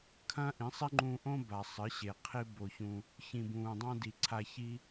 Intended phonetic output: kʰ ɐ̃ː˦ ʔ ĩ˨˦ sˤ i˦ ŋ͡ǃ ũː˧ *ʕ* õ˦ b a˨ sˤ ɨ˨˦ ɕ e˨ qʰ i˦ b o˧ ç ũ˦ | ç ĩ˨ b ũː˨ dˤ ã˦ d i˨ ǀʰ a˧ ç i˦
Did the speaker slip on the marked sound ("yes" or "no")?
yes